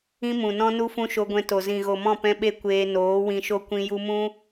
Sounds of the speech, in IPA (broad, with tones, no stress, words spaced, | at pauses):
ĩ˦mũ˨nɔ̃˦ nu˦fũ˦ʃo˧ ɡʷɛ̃˧to˨ zĩ˨ɣo˨mɔ̃˦˨ pɛ̃˦ɓe˦ kʷeː˧noː˨˦wĩ˧ʃo˦ kʷĩ˧ju˧mũ˦